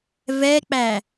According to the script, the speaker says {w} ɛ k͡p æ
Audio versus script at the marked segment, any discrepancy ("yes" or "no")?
yes